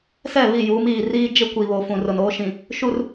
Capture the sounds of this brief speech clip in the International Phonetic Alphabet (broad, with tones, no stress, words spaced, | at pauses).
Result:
sɛ˦˨βi˦˨ juː˨˦miː˨ riː˦ d͡ʒɪ˦kʷi˨βo˨fũ˨ rʊ˨noː˦ʃĩ˨ | ʃu˨r